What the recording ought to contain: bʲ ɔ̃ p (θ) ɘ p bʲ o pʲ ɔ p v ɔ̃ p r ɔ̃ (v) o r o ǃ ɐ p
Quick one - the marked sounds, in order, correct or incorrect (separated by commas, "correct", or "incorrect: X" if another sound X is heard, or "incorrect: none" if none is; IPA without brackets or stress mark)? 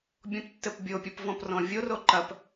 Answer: incorrect: tː, incorrect: vʲ